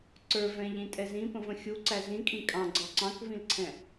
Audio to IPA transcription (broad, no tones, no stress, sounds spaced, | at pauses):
ǀ ə˞ v ɛ̃ ʎ ĩ tʼ ɛ z ĩ p ə̃ v ə̃ xʲ u ǀ æ z ĩ kʼ ĩ kʼ ɑ̃ ɡ͡ǀ ɑ ǀ ɑ̃ k v ĩ l ǀʰ ɛ̃